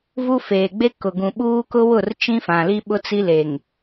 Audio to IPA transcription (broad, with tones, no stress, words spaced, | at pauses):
vu˦feː˨ ɡ͡be˦kʊ˨ɡũ˨ɓuː˦ kʊ˦wʊ˦˨r t͡ʃĩ˦fã˨li˦ɓʊ˦ t͡si˦le˨ŋ